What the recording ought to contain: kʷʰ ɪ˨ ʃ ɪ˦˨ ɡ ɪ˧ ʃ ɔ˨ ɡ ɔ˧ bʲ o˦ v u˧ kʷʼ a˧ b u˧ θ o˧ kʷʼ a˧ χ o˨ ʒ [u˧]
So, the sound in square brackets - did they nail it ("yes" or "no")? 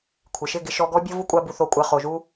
yes